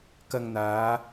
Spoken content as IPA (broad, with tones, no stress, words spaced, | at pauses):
kɐ˧ŋn̪aː˨˧